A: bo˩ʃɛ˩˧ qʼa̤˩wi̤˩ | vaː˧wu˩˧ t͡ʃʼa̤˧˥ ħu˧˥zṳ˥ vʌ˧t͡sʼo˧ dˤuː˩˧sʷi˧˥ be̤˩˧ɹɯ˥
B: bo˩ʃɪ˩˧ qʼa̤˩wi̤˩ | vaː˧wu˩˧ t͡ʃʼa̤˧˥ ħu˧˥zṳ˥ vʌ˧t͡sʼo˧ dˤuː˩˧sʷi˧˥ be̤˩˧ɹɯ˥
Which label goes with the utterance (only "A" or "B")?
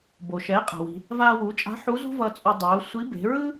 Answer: A